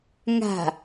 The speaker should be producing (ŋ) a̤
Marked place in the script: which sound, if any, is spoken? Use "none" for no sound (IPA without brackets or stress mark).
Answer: ŋ